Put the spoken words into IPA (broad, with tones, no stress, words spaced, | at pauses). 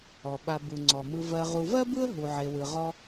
ɔ˩ɓa˨ bɯ˩ŋ͡ǀɔ˩mɯ˨ vɜ˨ʁu˨ vɜ˥ bɯ˥ə̯ ɦu˨ʕe˨wɯ˨ ʁɔ˦